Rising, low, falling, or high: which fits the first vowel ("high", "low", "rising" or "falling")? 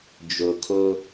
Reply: low